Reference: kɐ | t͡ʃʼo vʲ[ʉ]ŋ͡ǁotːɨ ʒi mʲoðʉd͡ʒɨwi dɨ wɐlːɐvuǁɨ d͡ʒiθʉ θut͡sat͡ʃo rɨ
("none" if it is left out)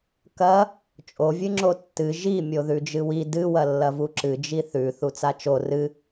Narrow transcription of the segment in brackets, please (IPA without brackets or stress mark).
ɨ